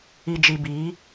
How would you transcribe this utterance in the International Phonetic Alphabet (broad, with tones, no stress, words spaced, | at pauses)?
i˨d͡ʒi˨biː˨˦